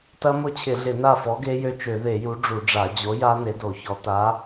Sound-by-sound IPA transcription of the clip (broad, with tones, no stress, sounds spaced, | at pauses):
t ɐ˦˥ m ʊ˥˨ t͡ɕʰ ɪ˧˩˧ ɮ ɪ˧˩˧ n a˥˨ f ɔ˨˥ ɡ e˦˥ j ø˦˥ t͡ʃ ø˧˩˧ ð e˧˩˧ j u˨˥ ɖ͡ʐ u˧˩˧ ɖ͡ʐ a˧˩˧ d͡ʑ o˨˥ j a˦˥ n e˨˥ d o˧˩˧ ç ɔ˨˥ t a˨˥